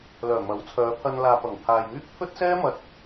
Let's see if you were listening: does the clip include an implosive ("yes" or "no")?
no